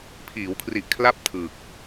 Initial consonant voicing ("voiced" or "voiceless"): voiceless